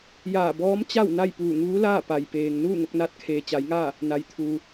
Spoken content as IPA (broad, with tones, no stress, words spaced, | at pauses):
jaː˧˩bɔː˧˥mt͡ɕa˥˨w na˥˨jpuː˧˩ŋuː˧˥laː˥˨ pa˩jpeː˩ŋ nuː˥˨ŋo˧k̚naː˧˥t̚ kʰeː˩t͡ɕa˩˧jŋaː˥˨ | na˩jt̪ʰuː˩